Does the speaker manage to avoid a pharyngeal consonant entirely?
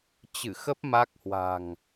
yes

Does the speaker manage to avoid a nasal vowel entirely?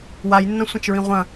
no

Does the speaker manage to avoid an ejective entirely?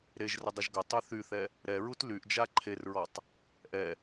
yes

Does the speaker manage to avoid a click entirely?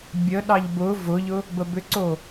no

